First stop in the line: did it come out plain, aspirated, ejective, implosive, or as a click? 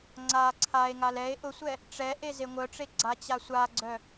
click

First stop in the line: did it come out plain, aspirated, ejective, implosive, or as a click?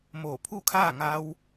aspirated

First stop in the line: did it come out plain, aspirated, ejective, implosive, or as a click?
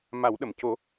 implosive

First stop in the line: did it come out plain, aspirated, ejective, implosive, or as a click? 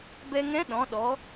plain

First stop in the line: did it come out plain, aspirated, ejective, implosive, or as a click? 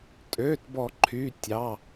ejective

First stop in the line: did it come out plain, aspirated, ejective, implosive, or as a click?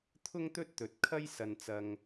aspirated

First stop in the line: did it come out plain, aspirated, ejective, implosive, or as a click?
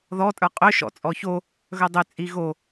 ejective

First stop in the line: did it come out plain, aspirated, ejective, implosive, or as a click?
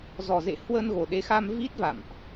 implosive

